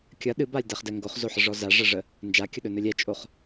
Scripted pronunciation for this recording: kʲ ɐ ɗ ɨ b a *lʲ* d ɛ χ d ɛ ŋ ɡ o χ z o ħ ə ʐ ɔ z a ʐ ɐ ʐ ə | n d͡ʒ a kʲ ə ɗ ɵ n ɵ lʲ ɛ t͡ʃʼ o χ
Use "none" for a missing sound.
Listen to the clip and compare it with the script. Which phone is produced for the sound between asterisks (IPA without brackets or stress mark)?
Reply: lʲ